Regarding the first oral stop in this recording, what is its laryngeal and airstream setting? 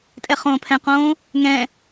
ejective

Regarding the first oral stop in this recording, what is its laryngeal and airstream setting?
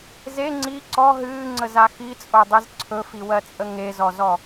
click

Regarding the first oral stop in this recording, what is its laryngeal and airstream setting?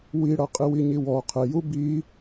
ejective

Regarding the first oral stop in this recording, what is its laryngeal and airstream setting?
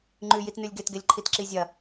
click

